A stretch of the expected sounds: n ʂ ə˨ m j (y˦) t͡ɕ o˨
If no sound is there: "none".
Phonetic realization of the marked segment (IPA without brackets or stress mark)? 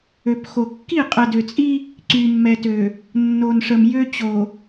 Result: ø˦